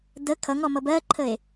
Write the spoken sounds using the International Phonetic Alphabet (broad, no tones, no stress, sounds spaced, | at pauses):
d ə kʰ ʌ ŋ ɔ m ʌ b ɜ ǃʰ ə e̯